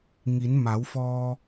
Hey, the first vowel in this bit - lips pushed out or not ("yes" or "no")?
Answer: no